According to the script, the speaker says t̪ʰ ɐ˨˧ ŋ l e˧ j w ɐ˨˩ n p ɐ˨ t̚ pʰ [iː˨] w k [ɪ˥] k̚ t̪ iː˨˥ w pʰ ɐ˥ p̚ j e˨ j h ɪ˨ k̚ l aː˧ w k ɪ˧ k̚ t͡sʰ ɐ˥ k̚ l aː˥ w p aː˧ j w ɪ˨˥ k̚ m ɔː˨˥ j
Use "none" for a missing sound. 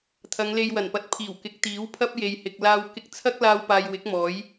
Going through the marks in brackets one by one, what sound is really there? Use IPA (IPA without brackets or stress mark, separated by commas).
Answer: iː˨˩, ɪ˨˥